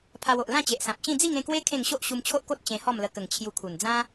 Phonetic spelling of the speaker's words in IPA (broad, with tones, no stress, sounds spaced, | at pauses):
pʰ a˧ w o˨ ʔ l ã˥˧ t͡ɕ e˨ ʔ s ã˨ p̚ t͡ɕ ĩ˥˧ d͡z i˥˧ ŋ ẽ˥˧ k w e˦ kʰ ẽ˥˧ ŋ ɕ o˦ ʔ ɕ u˧ m t͡ɕʰ o˦ ʔ k o˦ t̚ t͡ɕ ẽ˧ h ɔ˥˧ m l ə˧ k ə˨˩ ŋ t͡ɕʰ j u˧ kʰ u˨˩ n d͡z ã˦